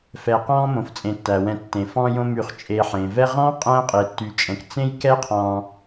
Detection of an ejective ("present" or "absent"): present